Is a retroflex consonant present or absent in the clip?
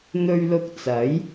absent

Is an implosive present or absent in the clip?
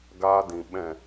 present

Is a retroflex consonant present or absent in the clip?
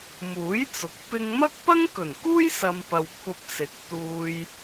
absent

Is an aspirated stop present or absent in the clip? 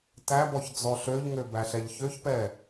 absent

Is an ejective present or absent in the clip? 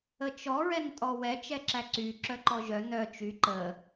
present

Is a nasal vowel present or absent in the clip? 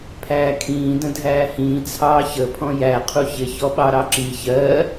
present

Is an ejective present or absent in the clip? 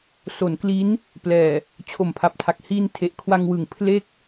absent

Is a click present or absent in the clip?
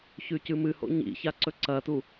present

